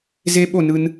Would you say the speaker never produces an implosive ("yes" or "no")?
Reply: no